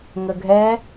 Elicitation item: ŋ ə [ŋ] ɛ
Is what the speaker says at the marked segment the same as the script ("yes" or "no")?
no